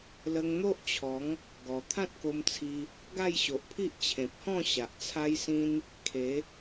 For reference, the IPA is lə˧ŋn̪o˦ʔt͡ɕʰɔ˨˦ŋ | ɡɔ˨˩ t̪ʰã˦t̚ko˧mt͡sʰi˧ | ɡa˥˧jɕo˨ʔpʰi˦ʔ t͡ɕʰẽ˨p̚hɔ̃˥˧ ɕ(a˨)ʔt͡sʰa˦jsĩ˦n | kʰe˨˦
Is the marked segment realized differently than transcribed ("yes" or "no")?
no